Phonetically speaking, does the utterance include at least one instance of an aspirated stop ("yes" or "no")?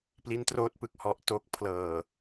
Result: yes